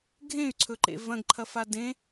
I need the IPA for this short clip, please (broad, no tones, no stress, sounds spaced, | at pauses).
ɡʱ ẽ y̯ ǀʰ ɵ ǃ ḛ v ɐ̃ ɡ ǃʰ ɐ f a d ẽ